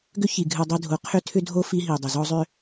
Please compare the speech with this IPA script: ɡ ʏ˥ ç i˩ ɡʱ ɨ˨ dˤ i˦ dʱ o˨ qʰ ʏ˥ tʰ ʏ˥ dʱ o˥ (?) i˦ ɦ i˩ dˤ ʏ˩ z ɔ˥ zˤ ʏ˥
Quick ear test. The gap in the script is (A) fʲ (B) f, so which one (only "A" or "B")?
B